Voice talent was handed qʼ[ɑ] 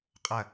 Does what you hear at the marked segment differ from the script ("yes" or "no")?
yes